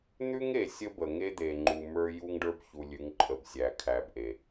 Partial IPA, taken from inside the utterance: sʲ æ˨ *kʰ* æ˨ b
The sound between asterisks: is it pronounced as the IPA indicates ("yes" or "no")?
yes